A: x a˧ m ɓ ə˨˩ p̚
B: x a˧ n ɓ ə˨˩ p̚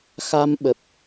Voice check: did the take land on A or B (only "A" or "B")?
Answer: A